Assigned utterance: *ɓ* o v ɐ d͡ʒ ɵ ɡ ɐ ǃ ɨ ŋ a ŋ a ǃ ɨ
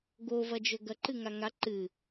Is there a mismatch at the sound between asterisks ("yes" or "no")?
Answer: yes